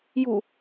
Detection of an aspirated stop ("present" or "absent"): absent